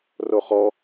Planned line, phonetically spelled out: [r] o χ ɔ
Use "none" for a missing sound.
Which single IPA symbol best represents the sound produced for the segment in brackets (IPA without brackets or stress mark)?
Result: r